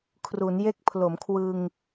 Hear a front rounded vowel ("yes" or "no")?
no